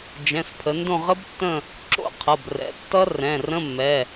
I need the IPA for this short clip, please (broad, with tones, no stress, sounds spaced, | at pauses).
d͡ʒ ɛ̃˩˧˩ s pʰ ə˩˧ n d õ˦˨ ʁ ə˦˥ b tː ə̃˦˨ | ǁ o̰˦˥ qʰ ʌ˩˧˩ b r ɛ̰˩˧˩ tː ʌ˦˥ r ɛ̃˩˧˩ r ə̃˧˥˧ mː ɛ˩˧˩